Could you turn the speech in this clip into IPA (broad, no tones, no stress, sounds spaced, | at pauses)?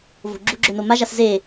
v o̤ ɡ͡ǁ u ɡ͡ǁ ɵ n o m a ʒ a s z e